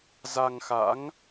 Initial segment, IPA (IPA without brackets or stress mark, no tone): z